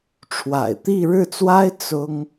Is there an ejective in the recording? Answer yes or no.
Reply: no